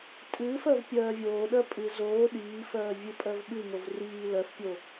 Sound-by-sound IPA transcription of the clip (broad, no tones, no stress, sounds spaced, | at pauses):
tʼ ɨː f ɜ v pʲ ɜː vʲ oː ɗ ɜ pʼ ɨ z oː ɗ iː f ɜː vʲ ɨ pʼ ɜ v ɓ ɨ ŋ o v r iː l ɜ f pʲ o